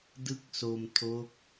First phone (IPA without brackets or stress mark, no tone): d